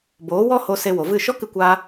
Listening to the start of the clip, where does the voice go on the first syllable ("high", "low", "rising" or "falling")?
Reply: rising